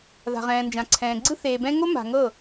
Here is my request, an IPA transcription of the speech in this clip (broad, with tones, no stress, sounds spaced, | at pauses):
ð a̤˨ ʁ ɛ̃ː˨ n d͡ʒ ã˨ ǀʰ ɛ̃ː˨ ɡ͡ǀ ɯ˦ θ eː˨ b ɛ̃˦ ŋ o˦ m a̤˨ ŋ ɤ˦˨